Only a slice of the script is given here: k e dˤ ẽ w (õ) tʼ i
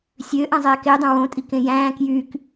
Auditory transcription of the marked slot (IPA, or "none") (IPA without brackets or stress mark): õ